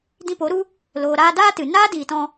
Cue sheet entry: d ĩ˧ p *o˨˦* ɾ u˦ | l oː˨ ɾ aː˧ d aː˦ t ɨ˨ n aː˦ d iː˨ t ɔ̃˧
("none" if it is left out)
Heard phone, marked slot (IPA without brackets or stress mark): o˨˦